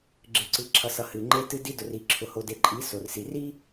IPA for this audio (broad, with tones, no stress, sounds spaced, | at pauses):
ɡ͡ǁ ɨ˨ ǀ ɨ˨ ǁʰ ʌ˨ s ʌ˨ h ɨ˨ ŋ͡ǃ e˦ t ɨ˦ d i˦ d ʊ˨ r i˨ ǁʰ ʊ˨ h o˨ d e˨ ǃʼ i˨˦ s o˨ r s i˨ r i˦